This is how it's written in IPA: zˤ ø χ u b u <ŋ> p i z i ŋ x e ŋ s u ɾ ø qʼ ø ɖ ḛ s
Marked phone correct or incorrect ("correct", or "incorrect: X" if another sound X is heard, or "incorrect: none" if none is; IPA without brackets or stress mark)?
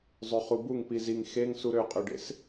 correct